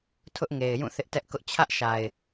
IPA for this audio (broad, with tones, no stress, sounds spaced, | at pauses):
tʰ ʊ˦ ʔ ŋ e˨ ɪ̯ j ũ˦˨ θ ɪ˦ ʔ t ɛ˦ ʔ k ʊ˦ ʔ t͡ɕʰ ä˦ ʔ ʃ a˨ ɪ̯